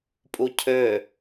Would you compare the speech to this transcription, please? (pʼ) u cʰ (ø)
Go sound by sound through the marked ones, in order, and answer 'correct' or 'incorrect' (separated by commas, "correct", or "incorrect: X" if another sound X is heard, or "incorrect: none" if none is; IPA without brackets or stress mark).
correct, correct